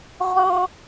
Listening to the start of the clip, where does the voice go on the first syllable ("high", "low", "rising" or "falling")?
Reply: high